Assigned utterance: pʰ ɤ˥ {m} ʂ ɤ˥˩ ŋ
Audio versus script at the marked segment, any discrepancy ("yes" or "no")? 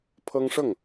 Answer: yes